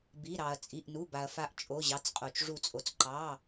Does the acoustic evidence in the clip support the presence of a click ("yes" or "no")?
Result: yes